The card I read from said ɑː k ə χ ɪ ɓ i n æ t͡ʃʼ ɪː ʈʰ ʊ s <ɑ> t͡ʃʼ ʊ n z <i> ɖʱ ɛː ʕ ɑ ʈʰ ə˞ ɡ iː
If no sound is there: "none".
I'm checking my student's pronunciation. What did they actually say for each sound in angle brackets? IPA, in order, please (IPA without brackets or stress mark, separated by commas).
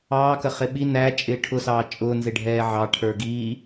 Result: ɑː, ɪ